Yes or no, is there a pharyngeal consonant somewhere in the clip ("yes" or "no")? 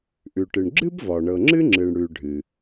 no